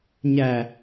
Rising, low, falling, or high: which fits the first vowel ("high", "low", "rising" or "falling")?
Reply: low